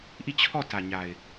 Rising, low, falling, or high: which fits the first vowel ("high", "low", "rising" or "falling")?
falling